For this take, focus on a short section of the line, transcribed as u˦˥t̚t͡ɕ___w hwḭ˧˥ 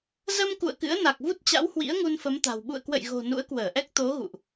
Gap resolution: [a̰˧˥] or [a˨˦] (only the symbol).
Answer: a̰˧˥